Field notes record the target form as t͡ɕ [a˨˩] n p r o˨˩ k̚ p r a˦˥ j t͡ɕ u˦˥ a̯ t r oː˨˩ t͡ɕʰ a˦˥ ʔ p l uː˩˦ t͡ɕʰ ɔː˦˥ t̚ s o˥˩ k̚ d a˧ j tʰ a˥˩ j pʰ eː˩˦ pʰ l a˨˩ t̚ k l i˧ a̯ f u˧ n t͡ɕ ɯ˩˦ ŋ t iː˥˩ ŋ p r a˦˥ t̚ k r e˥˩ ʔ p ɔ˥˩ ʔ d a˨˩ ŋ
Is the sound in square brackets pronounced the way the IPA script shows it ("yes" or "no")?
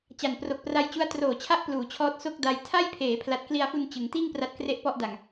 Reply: yes